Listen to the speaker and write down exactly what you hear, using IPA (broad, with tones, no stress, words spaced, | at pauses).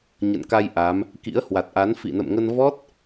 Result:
ɲə̰˧˨nka˧j ʔa˨˦m | kḭ˧˥ə̯hwa˨˩t̚ʔa˨˦n fḭ˧˨nə̰˧˨mŋə˧n vɔ˦˥t̚